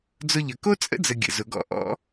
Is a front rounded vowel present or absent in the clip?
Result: absent